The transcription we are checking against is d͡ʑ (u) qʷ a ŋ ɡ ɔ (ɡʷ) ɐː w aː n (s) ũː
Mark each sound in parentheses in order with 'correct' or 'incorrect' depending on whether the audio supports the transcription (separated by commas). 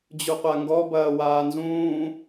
correct, incorrect, incorrect